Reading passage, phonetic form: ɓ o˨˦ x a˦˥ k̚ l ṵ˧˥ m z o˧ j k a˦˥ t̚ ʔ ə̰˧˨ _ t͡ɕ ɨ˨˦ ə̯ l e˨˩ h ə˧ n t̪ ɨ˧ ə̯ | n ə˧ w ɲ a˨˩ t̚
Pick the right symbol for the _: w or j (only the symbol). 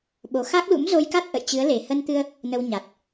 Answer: j